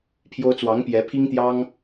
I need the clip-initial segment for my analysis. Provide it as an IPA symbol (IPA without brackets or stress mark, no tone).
pʰ